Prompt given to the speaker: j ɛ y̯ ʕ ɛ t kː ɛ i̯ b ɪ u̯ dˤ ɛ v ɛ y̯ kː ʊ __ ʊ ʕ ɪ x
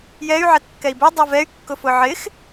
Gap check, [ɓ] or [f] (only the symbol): f